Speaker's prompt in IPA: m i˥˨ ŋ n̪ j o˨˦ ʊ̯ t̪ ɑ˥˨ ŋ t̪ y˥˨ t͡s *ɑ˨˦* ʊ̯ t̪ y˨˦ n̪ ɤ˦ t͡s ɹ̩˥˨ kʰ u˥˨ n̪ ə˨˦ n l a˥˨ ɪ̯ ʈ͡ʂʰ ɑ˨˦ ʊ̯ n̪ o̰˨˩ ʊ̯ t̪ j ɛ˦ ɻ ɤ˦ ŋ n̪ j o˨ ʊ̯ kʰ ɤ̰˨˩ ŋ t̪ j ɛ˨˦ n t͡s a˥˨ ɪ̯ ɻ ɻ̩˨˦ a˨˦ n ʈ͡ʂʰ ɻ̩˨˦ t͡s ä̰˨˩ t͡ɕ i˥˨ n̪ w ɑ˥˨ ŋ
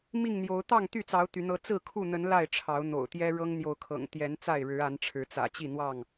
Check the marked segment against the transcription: correct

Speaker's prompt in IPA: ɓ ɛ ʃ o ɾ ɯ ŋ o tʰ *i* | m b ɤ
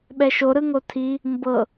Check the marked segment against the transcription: correct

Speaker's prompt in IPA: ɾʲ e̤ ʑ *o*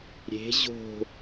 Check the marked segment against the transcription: incorrect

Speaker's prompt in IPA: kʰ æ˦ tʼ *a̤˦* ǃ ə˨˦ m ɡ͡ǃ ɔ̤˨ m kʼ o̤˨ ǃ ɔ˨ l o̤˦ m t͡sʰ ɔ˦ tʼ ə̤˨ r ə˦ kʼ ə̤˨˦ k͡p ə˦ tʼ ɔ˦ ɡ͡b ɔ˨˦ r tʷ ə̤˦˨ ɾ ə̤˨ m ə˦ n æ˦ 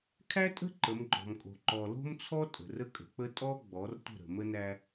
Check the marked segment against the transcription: incorrect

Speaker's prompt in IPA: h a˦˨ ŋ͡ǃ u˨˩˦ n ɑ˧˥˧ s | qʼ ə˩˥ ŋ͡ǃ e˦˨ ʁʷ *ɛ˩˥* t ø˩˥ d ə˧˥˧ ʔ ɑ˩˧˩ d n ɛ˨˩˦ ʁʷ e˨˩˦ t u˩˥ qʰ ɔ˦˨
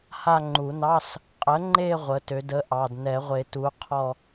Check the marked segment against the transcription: incorrect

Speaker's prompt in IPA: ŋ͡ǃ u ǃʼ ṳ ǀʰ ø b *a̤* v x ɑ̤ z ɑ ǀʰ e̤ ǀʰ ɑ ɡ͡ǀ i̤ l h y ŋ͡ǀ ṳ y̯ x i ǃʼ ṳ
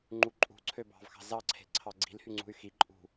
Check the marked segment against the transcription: incorrect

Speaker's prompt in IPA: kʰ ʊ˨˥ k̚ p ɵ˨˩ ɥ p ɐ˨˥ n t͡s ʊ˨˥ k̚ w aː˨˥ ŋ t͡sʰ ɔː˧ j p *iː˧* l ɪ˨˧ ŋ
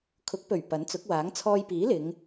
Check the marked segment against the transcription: incorrect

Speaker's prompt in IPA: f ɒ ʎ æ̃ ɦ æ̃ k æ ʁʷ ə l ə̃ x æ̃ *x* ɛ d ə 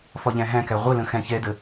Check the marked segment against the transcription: incorrect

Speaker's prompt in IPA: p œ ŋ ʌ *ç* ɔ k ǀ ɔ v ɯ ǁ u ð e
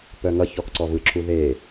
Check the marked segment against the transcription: correct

